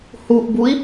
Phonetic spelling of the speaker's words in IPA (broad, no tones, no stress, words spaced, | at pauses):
huʔbui̯